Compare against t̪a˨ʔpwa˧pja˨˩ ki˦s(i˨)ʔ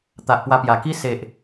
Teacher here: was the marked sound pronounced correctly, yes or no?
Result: no